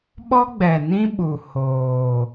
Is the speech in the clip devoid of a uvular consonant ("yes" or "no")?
yes